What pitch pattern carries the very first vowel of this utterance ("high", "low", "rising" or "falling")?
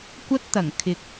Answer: high